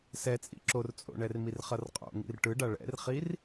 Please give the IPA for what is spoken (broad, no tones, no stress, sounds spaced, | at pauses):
s ɛ t͡sʼ ḭ ǁ o r t͡sʼ o̰ ɳ ɛ r m i r χ ʌ r qʼ o̰ ŋ ḭ r ʈ ɯ ɖ a ɭ ɛ̰ r χ i r